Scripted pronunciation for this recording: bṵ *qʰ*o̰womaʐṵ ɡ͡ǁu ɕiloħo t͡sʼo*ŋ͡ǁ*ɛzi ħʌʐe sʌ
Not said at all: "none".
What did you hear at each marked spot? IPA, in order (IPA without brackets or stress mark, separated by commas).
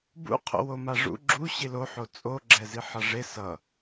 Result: qʰ, ɡ͡ǁ